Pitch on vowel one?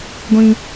high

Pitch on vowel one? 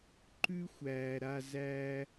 high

